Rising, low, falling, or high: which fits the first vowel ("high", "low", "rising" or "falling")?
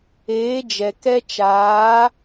rising